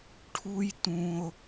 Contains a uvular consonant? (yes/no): no